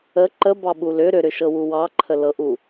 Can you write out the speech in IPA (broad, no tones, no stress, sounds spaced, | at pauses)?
ə ǃ ə b ɑ ɓ u l ʏ ɾ ʏ ɾ ʏ ʃ ɤ w u w ɑ ǃʰ ə l ɤ ʔ u